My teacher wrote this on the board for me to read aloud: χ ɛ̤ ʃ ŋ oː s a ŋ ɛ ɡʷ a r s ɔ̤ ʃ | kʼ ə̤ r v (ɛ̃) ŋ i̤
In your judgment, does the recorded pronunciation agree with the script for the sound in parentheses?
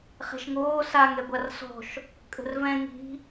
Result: yes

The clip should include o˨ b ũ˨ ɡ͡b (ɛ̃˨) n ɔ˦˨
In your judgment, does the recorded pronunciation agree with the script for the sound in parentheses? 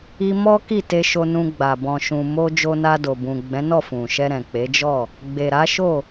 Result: no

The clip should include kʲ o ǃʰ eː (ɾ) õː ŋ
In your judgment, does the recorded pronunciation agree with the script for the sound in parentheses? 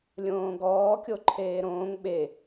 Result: yes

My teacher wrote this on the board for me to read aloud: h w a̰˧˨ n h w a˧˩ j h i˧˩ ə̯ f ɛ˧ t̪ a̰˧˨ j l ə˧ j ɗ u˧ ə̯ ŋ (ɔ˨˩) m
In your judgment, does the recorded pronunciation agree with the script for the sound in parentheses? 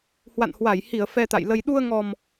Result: yes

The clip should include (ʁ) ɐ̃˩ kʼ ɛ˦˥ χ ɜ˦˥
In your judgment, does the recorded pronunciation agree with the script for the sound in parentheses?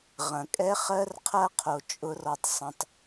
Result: yes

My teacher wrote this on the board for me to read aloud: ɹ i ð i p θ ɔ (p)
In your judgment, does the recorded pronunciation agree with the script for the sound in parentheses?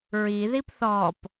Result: yes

